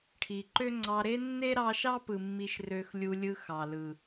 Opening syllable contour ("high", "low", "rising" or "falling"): low